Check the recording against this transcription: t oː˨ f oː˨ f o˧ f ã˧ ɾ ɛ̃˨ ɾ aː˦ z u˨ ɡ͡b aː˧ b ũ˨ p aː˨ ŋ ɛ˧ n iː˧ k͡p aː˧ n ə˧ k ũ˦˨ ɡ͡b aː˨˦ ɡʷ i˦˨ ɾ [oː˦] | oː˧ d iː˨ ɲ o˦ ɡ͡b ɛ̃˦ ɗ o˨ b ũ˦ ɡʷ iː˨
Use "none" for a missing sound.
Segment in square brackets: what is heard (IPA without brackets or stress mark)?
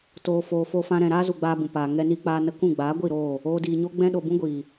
oː˦˨